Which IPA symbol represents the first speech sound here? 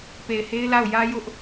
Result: p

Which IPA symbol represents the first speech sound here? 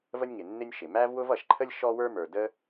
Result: v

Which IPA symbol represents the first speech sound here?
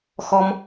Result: x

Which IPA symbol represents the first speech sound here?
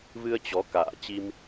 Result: v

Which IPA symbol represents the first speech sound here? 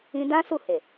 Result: ĩ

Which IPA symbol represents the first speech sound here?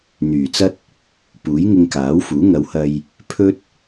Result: n̪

